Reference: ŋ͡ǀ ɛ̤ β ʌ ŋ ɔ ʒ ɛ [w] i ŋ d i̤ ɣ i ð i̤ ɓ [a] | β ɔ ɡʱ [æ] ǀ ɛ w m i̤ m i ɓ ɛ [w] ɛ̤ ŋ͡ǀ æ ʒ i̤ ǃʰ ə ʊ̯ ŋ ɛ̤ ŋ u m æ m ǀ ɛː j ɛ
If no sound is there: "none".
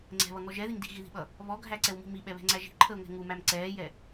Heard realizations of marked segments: ð, ʌ, æ, β

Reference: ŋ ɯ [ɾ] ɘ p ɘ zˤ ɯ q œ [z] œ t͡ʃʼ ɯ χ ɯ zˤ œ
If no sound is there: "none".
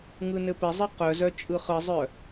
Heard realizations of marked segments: n, z

